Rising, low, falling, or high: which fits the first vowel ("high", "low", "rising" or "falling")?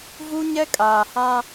high